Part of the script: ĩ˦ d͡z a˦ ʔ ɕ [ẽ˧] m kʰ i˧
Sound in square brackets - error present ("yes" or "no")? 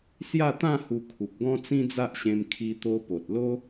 no